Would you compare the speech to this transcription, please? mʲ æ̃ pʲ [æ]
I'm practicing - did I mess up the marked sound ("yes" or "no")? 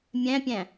yes